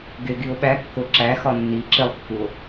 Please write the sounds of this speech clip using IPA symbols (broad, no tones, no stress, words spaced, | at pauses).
ɡeɡio̯ɓækːo ǁæxɒ nːi ǁilˠkːuo̯